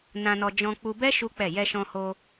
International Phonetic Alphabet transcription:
nã˧nɔ˧ d͡ʒɔ̃˧k͡pu˧bɛ˦ ʃu˦k͡pɛ˦˨ jɛ˧ʃɔ̃˧ho˧

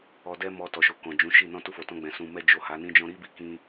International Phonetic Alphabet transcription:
ɔ˧dɛ˦mɔ˧ tɔ˨ʃo˨ kɔ̃˨d͡ʒũ˨˦ʃi˦˨ nɔ̃˧ tu˧fo˨tɔ̃˧ɡ͡bɛ̃˨ sũ˨mɛ˧ d͡ʒo˨ ha˨˦nĩ˦d͡ʒɔ̃˦ ɾi˦bi˧kĩ˧

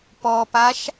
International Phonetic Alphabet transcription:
pɔpaʃ

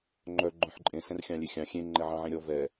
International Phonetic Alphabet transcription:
ŋ͡ǃœ ɡ͡ǃœ̃ħǃʼẽ sɛ̃rxʲɑ̃lʲexʲɑ̃ xʲẽ ŋ͡ǃɛʕɑ̃ʕẽɾʲɔ vɛ

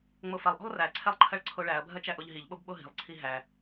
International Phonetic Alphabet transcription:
ŋ͡mofɐlˠʔo̤lˠ ræǀʰɛlˠ ǃʰɐɭǀʰoɭæɐ̯bʱɐ t͡ʃæʔoʎɦiʎɓob ɓoɦi̤lˠǀʰi ɦæ

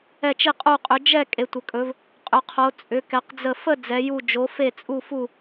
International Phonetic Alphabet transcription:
ɛ˥˧t͡ʃi˥˧qʼu˥˧qʼʏ˧˥ d͡ʒɛ˥˧ kʼe˧˥tʷə˧˥kʼɵ˧˥v | qʼʏ˧˥qʰo˧˥ t͡sʼʏ˧˥kɛ˧˥qd͡zə˥˧ fə˥˧ d͡zɛ˧˥ju˥˧ d͡ʒo˧˥fe˥˧t͡sʼu˥˧fu˥˧

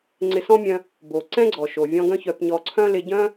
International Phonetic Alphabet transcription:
ŋ͡ǀɪ˧ sɔ̃˥mʲœ̃˧ | bo˩ ǀɛ̃˥ɡ͡ǀɔ˩ʃo˩vʲɔ̃˧ ɡœ̃˥çœ˧pɲɔ˧ ǀʰœ̃˥lɪ˧ɟœ̃˥

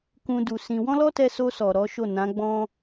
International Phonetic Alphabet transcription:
kũ˧du˨sĩ˧ wɔ̃˦lɔ˦tɛ˧so˧ sɔ˨ɾɔ˨˦ʃo˦˨ nã˨˦ɡ͡bɔ̃˦

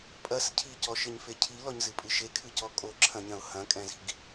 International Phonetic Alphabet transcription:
pʼɐs cʰicɔʃɘɲfe cʰilɔɲzɨpʼɨ ʃekʰɨcɔ kʼoǁʰɐ̃ɲɐ̃ʊ̯ hɐ̃kʼɛ̃zi̤ɡ

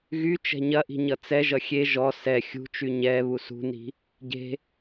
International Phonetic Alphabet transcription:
ɣy t͡ʃɛ̤ɲɐʔi̤ ɲʌt͡sɛʒʌ xʲe ʒɔ sɛ xʲṳt͡ʃy ɲɛ βusṳni̤ | ɟe̤

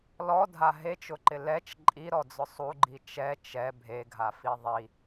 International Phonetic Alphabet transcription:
lɔdʱa ɦet͡ʃʊǃɪ lɛt͡ʃ ǃʼiɾɔd͡zʊ sˤuɡ͡ǃi t͡ʃɛ t͡ʃɛ bʱeɡʱafi ðˤi

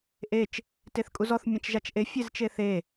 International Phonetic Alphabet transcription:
ʔet͡ʃ | teθkʼuzɔθ mʲɛ̃t͡ʃʒat͡ʃʔe fʲezt͡ʃeθe

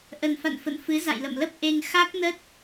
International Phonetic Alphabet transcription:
ʔə˨˩nfa̰˧˨n fə̰˧˨n fɨ˨˦ za̰˧˨jlə̰˧˨mlə˦˥p̚ ʔe˧ŋ xa˦˥k̚nə˦˥t̚

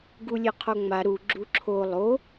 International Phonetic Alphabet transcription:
ɡulʲeqʰoŋ͡ma ɾu ɡ͡ǁuǁʰo lˠo

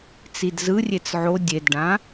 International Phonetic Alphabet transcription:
t͡sidzɯrʲet͡s ʕo dʲedɖã

